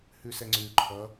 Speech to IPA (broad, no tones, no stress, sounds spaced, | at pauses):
h ʉ s ɛ ŋ͡ǀ ʉ ǃʰ ʌ